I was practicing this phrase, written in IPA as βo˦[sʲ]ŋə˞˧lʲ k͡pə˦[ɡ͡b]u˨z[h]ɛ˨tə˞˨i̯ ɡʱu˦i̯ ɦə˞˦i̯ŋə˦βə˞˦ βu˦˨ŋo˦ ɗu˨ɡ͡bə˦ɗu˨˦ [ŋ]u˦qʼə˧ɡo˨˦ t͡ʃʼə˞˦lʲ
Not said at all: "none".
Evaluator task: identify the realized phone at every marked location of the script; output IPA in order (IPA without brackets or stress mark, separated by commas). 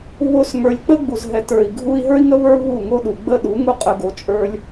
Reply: s, ɡ͡b, ɦ, ŋ